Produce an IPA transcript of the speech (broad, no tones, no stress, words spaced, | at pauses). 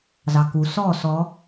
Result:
zɑku sɔ sɔ